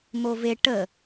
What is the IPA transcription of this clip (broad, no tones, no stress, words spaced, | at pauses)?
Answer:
move ʈə